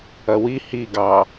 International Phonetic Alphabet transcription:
ɐ w i h i ɡ ɑ

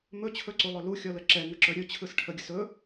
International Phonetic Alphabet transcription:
m ɵ t͡ɕʰ ɵ ǀ u lˠ ɵ l u xʲ ɔ l ə ǁ ɛ ŋ ə ǁ ɵ ɾʲ ɵ t͡ɕʰ ɯ s ʈʰ ə ɡʲ ə s ɵ

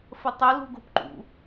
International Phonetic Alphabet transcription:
f ə tˤ ə l ṳ ɡ o p ǃ ṵ

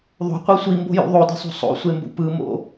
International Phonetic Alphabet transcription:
ðˤ o̤ qʷ i sʷ i m b o̤ j ṵ ðˤ o d i̤ sˤ o̤ sˤ o̰ sʷ e m b ṵ p ɯ m o̰

